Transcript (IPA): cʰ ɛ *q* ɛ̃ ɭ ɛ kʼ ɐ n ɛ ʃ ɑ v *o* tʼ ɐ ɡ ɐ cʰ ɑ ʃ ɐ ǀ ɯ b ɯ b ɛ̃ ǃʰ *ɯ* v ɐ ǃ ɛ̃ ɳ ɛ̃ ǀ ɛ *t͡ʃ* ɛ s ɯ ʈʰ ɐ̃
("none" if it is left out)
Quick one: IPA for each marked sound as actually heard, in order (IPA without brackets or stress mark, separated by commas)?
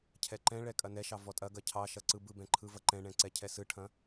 ǃ, ɔ, ɯ, cʰ